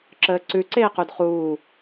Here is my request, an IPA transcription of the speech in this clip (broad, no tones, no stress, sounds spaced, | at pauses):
ǁ əː ǀ ʉ ǀ eː q u d χ uː